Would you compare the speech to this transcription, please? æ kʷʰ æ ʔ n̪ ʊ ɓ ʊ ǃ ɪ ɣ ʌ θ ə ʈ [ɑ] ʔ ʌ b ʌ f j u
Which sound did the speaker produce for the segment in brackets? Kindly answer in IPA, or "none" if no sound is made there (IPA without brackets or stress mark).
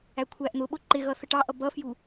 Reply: ɑ